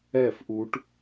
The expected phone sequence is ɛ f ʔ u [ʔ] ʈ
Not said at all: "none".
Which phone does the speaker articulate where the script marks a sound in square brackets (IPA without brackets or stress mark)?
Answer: none